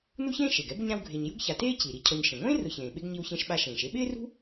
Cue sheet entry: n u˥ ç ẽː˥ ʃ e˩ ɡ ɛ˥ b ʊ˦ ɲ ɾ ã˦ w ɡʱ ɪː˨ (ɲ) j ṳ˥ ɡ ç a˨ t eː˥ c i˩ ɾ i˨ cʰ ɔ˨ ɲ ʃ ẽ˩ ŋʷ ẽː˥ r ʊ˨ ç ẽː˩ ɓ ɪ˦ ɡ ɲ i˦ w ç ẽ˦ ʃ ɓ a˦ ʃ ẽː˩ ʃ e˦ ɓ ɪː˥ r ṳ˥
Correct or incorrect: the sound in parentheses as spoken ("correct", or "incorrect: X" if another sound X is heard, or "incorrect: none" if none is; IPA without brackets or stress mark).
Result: correct